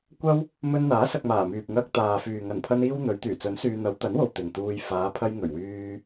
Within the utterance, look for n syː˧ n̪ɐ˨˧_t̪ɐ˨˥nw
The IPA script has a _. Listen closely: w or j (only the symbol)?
w